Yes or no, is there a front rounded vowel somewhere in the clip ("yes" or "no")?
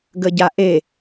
no